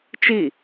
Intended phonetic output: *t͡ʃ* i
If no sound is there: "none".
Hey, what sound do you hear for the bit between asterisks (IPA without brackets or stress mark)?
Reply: t͡ʃ